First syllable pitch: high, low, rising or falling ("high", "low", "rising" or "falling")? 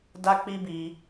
high